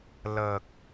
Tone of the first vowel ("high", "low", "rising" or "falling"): low